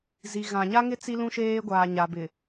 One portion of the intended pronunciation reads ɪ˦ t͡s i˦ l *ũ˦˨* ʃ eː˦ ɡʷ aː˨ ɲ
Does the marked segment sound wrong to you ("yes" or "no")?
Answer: yes